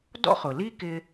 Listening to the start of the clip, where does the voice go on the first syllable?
high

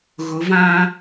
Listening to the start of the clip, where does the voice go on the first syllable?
rising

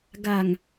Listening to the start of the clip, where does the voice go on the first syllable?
low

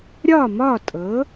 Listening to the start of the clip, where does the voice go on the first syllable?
falling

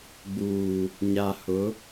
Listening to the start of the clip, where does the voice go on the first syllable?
low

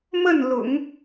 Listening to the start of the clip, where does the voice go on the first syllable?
falling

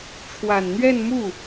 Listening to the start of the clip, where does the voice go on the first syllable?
low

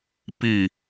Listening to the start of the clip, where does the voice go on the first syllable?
falling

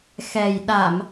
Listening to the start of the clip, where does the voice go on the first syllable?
low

